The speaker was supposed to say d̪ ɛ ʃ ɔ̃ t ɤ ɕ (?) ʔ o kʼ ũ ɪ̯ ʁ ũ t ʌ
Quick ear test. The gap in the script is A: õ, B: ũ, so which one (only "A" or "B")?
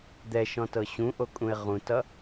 B